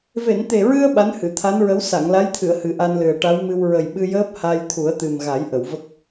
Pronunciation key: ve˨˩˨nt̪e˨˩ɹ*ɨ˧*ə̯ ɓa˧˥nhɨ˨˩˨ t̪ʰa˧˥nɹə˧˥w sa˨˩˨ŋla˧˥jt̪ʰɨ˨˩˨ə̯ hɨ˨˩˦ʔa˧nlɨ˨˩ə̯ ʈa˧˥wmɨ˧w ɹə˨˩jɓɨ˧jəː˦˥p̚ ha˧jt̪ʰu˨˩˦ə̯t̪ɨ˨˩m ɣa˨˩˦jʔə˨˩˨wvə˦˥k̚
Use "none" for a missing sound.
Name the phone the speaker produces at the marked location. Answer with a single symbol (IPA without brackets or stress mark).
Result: ɨ˧